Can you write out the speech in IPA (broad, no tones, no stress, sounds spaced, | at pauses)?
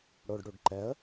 ɽ o ɖ ɽ u ɖ ǃ ɛ ə̯